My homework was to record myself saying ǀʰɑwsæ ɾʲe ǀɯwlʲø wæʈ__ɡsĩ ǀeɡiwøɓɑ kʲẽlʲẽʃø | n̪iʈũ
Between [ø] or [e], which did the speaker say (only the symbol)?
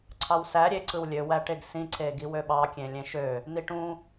e